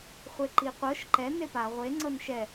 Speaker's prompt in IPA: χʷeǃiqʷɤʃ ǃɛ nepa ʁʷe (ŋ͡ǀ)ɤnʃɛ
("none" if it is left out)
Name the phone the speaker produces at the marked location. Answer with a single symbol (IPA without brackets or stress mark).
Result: ŋ͡ǀ